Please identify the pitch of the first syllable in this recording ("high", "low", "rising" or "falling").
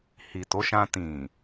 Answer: low